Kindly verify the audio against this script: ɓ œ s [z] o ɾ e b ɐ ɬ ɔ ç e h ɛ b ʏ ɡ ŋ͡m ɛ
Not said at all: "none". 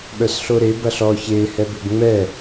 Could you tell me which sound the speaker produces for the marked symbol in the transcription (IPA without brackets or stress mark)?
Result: ɬ